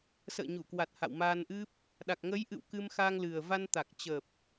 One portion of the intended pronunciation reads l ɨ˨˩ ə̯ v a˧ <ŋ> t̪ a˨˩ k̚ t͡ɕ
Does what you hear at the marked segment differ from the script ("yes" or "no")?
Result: yes